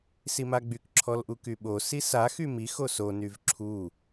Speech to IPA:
simaɡ͡byk ǁʰɔlʔukyɓo sisa xymix oso nyvǁʰu

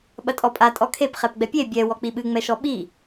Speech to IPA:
ɓɐtʼɔpʼa tʼɔkʰep χɛpɡ͡bɛpʲe bʲɛ wɔk͡piɓɨ ŋ͡mɛʃɔɓi

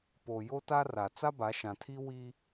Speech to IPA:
po˨ jo˦ta˦ra˨ t͡sa˦ba˨˦ʃã˨tʰi˦ wi˦

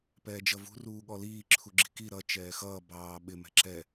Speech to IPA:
pɛːd͡ʒʌvṳ ruːɠɔliː ǁʰuɡ͡ǁi̤ki ɾʌ t͡ʃɛːxʌː bɑː ɓɪ mɛ̤ǁɛ

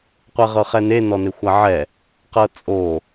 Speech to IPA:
qʷɛʁɤχɛne nɔnexʷaʕɛ | qɤt͡sʼo

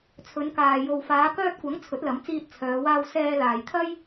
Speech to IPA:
t͡sʰɵ˨˧nkaː˨ jo˨wfaː˨˧kœː˧t̚kʷɐ˨˥ŋ t͡sʰɵ˨˥t̚lɐ˨˥mt͡siː˧t̚ t͡sʰœː˨˧waː˧w sɛː˧ laː˨jt̪ʰɐ˥j

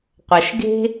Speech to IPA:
qʷɐ˧ʃɡe̤˥

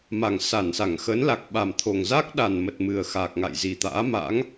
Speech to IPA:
ma˨˩ŋsa˧˩nsa˧˩ŋ xə˨˦nla˨˩k̚ɓa˨˩mt̪ʰo˨˩ŋ za˦˥k̚ɗa˨˩nmə˨˩t̚ mɨ˨˩ə̯xa˨˩k̚ŋa̰˧˨j zi˨˩t̪a̰ː˧˥ma̰˧˥ŋ

